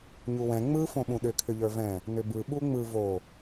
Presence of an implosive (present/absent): present